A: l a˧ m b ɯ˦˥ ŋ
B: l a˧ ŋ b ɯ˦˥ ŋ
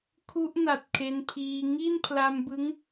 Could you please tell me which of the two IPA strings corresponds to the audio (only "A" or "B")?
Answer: A